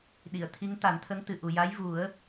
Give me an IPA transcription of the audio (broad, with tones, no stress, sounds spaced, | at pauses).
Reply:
ɗ i˨˩˨ ə̯ t̪ʰ i˧˥ ŋ t̪ a˨˩˦ n t̪ʰ ə˧˥ ŋ t̪ ɨ˨˩ ʔ u˨˩ j a˧˥ j v u˨˩˦ ə̯